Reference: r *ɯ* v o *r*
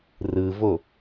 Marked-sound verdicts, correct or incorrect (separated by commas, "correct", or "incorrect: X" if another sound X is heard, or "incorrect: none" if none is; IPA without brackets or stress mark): correct, incorrect: none